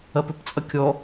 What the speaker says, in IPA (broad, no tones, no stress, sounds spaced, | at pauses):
ɐ p ɵ p t͡sʼ ɐ kʲ ɔ